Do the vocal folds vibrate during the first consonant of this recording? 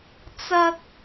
no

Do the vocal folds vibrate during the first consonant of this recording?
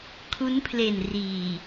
no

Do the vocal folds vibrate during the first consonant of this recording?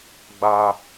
yes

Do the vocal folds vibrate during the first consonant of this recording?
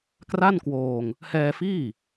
no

